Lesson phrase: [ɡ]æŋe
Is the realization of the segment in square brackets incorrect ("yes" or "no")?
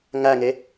yes